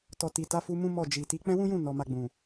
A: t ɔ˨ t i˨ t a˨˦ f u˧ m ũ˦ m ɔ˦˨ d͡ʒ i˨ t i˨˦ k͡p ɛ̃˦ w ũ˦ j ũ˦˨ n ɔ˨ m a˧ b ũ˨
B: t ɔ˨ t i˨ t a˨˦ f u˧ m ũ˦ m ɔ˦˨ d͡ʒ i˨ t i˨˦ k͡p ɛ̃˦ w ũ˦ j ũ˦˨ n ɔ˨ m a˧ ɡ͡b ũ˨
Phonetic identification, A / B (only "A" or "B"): B